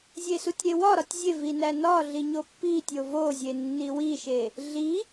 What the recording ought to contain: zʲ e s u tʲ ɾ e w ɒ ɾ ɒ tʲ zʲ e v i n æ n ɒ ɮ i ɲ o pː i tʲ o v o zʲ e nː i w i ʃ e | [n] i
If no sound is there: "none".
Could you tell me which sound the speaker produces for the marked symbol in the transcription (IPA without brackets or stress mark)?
ɮ